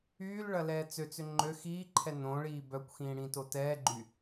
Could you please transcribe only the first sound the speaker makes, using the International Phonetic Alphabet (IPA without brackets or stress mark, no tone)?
yː